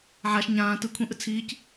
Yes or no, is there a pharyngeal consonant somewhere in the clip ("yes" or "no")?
yes